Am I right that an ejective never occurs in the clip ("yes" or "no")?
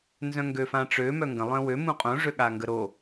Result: no